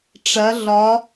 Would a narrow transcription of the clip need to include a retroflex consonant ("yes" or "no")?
yes